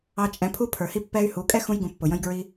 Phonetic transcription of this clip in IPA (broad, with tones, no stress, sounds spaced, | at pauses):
ɑ˧ t͡ʃʼ ɛ̃˨˦ pʰ u˦ pʰ ə˞˨ h i˦ pː ɛ˦ y̯ h u˨˦ kʼ ɛ˦ x ũ˧ j ɡ ũ˨ pː ʊ˨ j ə̃˦ j ɡ ɹ i˦